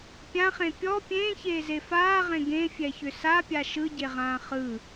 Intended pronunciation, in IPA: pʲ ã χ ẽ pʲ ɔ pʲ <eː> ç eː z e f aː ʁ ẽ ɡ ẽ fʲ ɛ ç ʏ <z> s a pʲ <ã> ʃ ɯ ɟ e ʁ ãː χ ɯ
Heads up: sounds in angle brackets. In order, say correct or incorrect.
incorrect, incorrect, incorrect

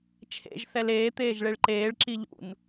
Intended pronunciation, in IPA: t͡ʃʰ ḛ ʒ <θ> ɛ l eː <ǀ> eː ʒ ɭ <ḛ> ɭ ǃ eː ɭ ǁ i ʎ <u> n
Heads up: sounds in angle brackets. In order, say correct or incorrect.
correct, incorrect, incorrect, incorrect

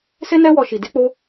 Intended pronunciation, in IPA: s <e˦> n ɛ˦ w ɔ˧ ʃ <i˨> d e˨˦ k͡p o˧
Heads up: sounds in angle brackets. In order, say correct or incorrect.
correct, correct

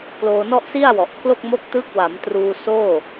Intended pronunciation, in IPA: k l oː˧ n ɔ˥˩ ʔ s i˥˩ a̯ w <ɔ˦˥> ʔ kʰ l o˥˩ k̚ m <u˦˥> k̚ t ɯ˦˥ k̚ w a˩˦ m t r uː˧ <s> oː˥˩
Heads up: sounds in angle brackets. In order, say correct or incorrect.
incorrect, incorrect, correct

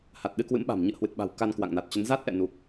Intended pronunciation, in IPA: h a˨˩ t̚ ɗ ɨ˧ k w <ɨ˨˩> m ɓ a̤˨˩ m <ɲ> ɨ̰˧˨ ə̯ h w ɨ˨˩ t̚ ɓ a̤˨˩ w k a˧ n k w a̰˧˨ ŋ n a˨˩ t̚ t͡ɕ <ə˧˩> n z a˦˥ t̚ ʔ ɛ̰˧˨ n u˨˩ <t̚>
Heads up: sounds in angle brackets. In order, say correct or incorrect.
incorrect, correct, incorrect, incorrect

